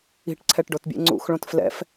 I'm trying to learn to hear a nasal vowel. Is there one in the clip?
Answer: yes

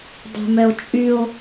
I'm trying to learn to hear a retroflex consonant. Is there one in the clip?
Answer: no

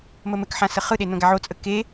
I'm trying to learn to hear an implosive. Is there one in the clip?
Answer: yes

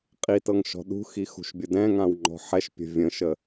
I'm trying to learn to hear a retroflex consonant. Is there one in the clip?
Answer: no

